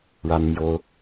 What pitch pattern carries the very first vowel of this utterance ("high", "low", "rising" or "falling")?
high